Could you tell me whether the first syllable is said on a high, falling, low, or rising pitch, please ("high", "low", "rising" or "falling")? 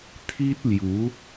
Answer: high